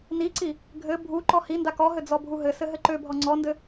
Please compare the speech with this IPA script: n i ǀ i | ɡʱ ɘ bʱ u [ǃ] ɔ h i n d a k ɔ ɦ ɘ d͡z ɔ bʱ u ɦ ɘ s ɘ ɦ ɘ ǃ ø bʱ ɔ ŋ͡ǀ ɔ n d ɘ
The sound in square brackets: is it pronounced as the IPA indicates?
yes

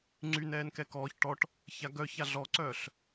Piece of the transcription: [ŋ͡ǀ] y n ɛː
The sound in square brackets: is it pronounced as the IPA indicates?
yes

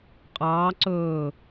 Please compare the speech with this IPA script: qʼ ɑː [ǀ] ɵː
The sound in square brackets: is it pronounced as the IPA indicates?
yes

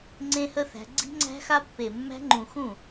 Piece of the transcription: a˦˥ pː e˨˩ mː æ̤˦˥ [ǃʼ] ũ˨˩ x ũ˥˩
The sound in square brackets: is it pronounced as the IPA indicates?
no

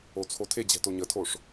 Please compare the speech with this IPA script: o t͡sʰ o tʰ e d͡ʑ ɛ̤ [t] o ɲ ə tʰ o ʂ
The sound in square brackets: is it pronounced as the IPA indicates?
yes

